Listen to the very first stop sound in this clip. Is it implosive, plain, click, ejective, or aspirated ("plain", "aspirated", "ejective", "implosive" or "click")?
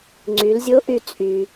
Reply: click